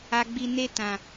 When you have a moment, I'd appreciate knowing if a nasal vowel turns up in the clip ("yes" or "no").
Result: yes